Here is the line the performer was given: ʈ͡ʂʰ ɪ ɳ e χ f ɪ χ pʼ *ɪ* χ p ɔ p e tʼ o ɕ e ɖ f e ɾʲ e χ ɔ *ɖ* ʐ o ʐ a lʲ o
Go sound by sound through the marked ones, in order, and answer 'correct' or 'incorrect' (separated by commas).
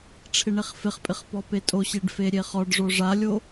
correct, correct